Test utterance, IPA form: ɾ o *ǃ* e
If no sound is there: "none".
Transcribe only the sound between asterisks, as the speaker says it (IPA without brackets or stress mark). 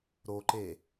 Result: ǃ